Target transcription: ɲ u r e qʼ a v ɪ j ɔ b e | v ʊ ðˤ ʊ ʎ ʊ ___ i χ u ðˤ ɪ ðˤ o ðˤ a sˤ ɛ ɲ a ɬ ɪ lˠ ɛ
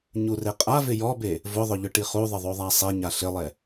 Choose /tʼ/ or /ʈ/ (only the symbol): ʈ